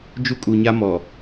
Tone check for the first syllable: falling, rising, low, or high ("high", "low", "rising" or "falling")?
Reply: high